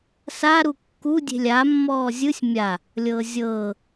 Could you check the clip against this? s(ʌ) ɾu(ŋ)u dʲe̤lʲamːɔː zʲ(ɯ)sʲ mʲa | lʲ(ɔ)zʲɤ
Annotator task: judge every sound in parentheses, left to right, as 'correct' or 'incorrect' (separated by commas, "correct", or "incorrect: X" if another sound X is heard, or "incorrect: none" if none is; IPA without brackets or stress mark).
incorrect: a, incorrect: kː, correct, incorrect: ɤ